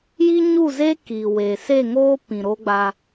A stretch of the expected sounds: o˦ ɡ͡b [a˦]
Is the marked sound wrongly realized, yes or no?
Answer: no